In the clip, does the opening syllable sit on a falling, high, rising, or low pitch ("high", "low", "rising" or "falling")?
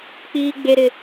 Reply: high